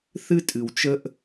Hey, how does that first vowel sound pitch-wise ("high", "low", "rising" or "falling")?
high